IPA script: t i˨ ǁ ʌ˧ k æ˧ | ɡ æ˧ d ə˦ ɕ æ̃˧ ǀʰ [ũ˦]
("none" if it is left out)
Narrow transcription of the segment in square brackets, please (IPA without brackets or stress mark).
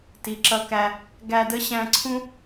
ũ˦